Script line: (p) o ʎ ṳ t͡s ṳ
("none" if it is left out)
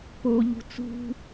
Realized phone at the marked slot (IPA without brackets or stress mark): p